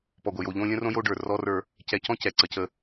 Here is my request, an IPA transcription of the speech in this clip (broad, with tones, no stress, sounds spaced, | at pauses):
p ɔ˨ ɡʷ ə˨ j o˨ ʎ õ˦ lʲ ə̃˦ r õ˦ j o˦ ɖ ə˞˨ r ɔ˦ r ə˞˦ | c ɛ˨ c ɔ̃˦ c ɛ˨ ǀ ə˨ c ə˦